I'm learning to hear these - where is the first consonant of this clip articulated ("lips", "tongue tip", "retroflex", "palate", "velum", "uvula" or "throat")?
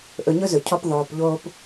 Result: throat